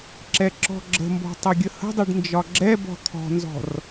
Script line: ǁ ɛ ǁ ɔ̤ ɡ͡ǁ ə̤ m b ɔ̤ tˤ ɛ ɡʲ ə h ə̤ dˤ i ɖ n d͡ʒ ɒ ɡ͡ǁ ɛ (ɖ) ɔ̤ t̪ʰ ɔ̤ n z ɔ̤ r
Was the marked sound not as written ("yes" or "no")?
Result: yes